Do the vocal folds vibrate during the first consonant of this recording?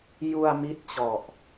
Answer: yes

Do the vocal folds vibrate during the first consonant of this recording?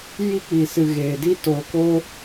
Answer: yes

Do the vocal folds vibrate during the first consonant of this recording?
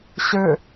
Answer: no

